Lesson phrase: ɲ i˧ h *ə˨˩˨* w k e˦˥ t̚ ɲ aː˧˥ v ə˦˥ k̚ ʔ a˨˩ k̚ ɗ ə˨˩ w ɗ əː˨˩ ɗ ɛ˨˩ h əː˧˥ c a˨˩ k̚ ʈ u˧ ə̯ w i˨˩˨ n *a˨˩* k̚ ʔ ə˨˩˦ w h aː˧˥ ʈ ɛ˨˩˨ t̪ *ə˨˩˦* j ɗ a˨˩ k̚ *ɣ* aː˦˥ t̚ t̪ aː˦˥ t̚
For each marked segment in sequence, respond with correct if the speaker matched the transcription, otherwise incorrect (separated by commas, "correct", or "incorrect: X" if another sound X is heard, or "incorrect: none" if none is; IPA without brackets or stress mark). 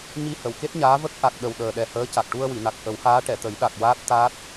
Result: correct, correct, correct, incorrect: w